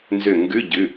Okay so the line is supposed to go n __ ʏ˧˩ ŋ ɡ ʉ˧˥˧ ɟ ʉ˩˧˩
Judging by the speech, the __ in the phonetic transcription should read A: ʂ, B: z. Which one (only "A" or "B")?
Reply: B